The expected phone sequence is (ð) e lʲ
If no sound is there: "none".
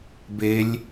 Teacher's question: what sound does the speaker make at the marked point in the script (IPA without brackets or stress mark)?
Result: b